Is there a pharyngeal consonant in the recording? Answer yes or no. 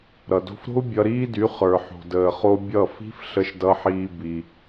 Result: yes